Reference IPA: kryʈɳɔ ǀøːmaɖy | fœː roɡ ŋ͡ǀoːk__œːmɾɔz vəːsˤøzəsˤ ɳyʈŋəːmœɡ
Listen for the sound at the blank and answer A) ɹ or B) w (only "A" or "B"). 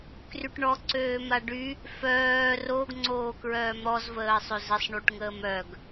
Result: A